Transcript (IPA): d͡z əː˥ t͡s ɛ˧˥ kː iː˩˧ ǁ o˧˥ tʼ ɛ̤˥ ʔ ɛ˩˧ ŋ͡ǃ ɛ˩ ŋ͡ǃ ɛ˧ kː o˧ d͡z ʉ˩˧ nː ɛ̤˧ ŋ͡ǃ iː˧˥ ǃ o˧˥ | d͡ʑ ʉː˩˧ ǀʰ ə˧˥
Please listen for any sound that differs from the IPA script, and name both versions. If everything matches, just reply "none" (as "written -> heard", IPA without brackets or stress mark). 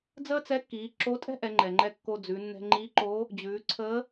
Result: none